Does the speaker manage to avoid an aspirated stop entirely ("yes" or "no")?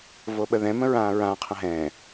no